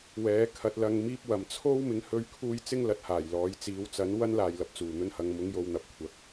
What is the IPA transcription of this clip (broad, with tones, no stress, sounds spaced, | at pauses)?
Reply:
w ɛː˨˥ kʰ ɐ˧ t̚ l ɐ˧ ŋ m iː˥ p̚ w ɐ˨ m t͡sʰ o˥ w m ɪ˨˧ ŋ h ɵ˧ ɥ kʰ uː˧ j t͡s ɪ˥ ŋ l ɐ˨ t̚ h aː˨˩ j l ɔː˨˧ j t͡s iː˨˧ w t͡s ɐ˨˥ n w ɐ˥ n l aː˨ j l ɐ˨ p̚ t͡s uː˨˩ n̪ ɵ˧ n h ɐ˨ ŋ m ʊ˨˧ ŋ j o˨ w n̪ ɐ˨ p̚ kʷʰ ɐ˨˥ k̚